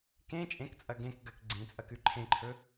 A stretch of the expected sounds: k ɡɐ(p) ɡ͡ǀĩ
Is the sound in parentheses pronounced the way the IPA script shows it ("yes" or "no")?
no